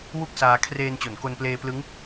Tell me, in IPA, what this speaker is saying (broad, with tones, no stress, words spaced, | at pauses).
wu˥˩k̚saː˧ kʰreː˧nt͡ɕo˩˦nko˧npleː˧ plɯ˦˥ŋ